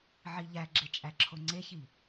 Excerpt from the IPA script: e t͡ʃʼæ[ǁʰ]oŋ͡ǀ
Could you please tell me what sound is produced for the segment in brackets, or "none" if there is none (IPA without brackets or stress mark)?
ǁʰ